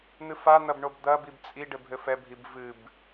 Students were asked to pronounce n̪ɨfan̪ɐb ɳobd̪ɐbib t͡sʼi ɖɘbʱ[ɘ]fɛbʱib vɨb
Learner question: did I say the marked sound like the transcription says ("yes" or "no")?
yes